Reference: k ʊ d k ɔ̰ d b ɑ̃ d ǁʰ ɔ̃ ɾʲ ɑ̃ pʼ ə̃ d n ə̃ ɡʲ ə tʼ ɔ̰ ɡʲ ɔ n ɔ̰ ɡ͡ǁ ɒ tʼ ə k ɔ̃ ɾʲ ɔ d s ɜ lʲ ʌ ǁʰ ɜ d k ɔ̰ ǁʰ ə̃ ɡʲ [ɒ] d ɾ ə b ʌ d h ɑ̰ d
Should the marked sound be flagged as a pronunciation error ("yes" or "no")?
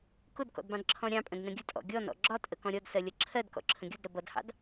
yes